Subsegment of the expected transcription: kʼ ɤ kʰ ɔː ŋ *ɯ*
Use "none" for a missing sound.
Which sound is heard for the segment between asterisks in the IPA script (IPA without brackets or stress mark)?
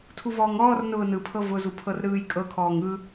ɯ